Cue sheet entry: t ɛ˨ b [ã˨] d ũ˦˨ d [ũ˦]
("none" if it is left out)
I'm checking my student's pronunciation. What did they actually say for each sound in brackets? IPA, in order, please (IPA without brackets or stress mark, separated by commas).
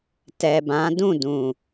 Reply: ã˨˦, ũ˨